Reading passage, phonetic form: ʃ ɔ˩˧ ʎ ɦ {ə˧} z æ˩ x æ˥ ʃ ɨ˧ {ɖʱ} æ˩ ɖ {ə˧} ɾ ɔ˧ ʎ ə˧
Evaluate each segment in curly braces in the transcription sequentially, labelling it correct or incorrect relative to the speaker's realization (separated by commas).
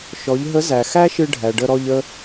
incorrect, correct, correct